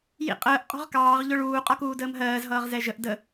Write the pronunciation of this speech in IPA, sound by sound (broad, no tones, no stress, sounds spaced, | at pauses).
j ḭ qʼ əː ʔ qʼ ɔ̤ ʁ k ɑː ʁ ʎ ʊ ɭ uː qʼ ɒ k uː d əː m ɦ ɜː z ɦ ʌː ʁ z ɛ ʒ ə ʔ d ə